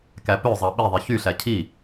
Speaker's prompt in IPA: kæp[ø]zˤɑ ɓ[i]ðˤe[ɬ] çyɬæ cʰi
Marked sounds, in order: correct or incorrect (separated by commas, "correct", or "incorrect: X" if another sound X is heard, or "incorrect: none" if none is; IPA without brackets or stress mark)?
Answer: correct, correct, incorrect: none